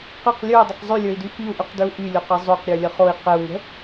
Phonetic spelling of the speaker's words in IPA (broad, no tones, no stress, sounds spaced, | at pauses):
q ɘ q lʲ ə˞ i̯ dˤ ɘ q zˤ y lʲ ə˞ i̯ d y f i u̯ ʔ y q d ə˞ u̯ ʔ y lʲ o q ɘ zˤ o q ɾʲ ə˞ lʲ ə χ o i̯ q ɘ u̯ ŋ ə̤